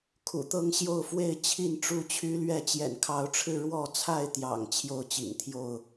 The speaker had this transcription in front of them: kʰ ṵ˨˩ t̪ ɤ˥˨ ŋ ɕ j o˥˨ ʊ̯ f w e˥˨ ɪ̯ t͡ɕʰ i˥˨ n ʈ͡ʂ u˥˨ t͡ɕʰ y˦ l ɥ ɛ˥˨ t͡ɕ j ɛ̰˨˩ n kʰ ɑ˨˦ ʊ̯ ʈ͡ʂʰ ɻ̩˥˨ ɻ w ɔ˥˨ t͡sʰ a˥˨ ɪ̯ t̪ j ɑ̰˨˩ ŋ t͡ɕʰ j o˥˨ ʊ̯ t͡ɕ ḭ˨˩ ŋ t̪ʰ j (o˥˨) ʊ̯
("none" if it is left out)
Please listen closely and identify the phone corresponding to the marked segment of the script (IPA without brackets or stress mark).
o˥˨